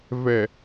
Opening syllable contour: low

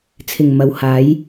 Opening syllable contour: low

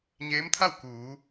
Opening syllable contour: rising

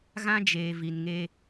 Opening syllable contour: high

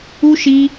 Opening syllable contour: high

